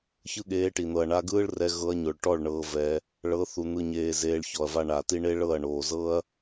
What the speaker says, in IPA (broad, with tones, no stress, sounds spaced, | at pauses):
ç ɯ˦ ɠ eː˧ ʈ i˨ n̪ ɤ˨ ɐ̯ ɳ a˧ ɡ ɯː˦ ɭ r ɛ˧ ɣ ɤ˧ ɐ̯ ɲ o˨ ɭ ʈ ɔ˦˨ ɭ ɳ ɤː˧ v ɛ˧ | ɭ ɤ˨˦ θ u˨ n̪ ɯ˨ ɲ eː˨ z eː˧ ɭ ç ɔ˨ ɐ̯ v a˦ ɳ a˨ t i˦ ɳ e˦ ɭ ɤ˦˨ ɐ̯ ɳ oː˨ z ɤ˦ ɐ̯